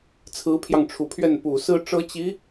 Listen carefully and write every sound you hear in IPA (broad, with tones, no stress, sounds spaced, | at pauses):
t͡sʰ ɹ̩˧˥ pʰ j ɑ˧ ŋ ʈ͡ʂʰ u˨˩ pʰ ɥ ɛ˥˩ n p u˨˩ s ɹ̩˥ ʈ͡ʂ ɤ˥ t͡ɕ i˧˥